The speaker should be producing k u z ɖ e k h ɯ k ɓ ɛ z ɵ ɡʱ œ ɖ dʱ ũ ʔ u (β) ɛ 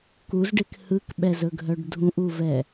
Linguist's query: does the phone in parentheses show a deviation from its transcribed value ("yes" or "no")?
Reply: yes